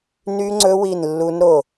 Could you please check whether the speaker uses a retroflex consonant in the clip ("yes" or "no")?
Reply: no